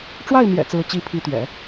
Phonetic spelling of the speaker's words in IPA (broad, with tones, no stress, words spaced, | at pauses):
ʈ͡ʂwa˥˩ɪ̯mjɛ̰˨˩ t͡sɹ̩˧˥t͡ɕi˧˥pʰi˧˥t̪ɥɛ̰˨˩˦